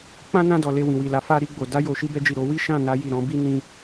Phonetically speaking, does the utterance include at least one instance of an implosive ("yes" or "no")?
no